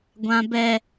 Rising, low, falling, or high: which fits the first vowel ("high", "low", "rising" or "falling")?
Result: high